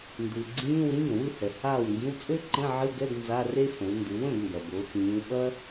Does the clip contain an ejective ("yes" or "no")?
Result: yes